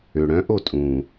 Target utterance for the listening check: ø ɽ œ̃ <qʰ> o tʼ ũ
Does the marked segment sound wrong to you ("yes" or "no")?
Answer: yes